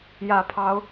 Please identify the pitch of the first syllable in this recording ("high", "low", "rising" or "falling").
falling